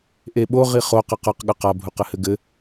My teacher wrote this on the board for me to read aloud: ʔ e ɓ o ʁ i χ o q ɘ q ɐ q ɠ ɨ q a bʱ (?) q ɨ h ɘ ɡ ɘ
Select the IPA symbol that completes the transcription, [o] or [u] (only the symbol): u